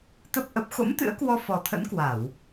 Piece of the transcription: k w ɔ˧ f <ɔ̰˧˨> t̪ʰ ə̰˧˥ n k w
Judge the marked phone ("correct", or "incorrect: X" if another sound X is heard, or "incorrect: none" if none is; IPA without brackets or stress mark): incorrect: ɔ˨˩